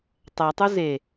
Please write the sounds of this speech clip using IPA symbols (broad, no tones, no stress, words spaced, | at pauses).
tˤætˤu ze